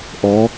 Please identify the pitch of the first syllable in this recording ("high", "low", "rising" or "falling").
rising